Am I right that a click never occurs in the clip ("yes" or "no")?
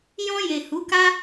yes